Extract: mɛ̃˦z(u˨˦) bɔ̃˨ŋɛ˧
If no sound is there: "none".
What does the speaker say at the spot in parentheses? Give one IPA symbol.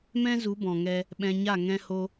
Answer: u˨˦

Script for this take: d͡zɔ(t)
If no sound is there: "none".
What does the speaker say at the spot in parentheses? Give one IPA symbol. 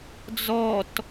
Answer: t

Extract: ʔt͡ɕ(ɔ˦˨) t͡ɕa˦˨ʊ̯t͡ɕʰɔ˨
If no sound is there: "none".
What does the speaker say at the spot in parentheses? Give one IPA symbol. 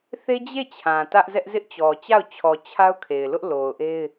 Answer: ɔ˨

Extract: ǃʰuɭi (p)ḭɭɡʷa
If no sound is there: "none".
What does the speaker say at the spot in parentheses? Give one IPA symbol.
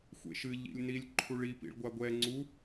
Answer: p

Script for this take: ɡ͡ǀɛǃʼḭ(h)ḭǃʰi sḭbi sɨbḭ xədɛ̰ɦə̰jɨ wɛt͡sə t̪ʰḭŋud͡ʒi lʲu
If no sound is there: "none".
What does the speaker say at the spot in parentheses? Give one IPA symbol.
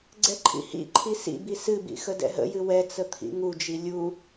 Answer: h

